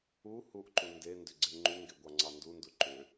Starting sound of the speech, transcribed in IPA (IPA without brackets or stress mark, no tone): u